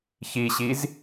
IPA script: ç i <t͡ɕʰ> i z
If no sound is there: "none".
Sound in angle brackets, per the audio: ɕ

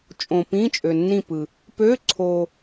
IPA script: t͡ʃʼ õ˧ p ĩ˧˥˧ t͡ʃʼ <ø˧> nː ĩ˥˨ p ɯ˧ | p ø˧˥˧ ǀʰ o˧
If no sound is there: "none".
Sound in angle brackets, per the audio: ø˧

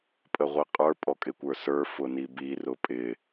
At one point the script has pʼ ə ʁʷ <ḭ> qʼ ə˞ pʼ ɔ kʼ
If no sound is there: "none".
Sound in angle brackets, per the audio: i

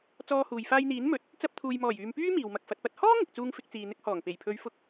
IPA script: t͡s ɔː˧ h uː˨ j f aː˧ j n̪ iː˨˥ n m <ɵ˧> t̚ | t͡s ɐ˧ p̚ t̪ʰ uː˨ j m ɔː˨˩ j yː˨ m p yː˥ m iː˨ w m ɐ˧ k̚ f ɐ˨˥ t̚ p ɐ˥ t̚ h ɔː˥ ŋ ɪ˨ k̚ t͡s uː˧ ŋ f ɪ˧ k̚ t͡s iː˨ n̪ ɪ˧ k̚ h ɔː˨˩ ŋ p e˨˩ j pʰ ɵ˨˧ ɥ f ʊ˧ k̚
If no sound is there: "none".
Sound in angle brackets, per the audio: ɵ˨˥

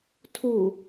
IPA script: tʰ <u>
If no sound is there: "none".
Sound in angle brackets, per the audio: u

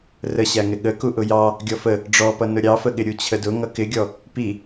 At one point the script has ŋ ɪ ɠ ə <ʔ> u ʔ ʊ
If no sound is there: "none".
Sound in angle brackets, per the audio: k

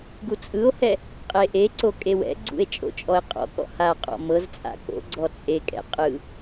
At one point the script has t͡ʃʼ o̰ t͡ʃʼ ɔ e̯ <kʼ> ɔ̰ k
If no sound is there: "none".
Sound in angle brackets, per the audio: qʼ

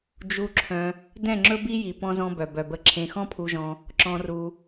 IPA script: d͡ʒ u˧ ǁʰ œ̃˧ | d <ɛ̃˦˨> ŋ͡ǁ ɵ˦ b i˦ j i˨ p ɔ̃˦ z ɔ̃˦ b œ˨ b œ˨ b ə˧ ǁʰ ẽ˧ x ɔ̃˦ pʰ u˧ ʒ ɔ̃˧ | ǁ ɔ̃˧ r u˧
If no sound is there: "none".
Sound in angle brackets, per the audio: ɛ̃˦˨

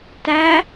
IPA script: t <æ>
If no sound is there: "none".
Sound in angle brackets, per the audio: æ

